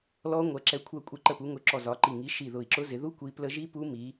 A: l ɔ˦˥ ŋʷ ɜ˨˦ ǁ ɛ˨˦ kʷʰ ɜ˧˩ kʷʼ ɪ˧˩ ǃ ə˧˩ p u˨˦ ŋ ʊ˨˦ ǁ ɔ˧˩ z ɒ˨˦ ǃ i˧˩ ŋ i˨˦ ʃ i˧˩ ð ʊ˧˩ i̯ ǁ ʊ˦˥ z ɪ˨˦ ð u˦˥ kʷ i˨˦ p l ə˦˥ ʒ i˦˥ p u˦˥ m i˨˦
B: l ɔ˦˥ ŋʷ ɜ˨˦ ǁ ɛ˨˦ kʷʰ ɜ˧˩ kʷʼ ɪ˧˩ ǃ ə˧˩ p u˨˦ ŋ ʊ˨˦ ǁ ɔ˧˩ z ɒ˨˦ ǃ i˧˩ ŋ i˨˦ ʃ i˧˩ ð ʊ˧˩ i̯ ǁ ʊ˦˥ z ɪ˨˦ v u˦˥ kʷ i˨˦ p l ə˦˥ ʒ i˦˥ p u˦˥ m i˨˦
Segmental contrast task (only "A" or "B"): A